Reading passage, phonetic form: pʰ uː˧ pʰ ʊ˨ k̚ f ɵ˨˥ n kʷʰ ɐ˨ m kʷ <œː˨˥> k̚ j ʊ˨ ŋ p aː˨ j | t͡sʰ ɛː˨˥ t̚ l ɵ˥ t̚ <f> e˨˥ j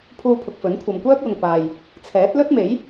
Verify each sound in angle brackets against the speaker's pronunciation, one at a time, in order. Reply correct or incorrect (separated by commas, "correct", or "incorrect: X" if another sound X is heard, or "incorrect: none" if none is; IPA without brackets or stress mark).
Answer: incorrect: œː˥, incorrect: m